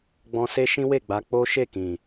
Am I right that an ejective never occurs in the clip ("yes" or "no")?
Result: yes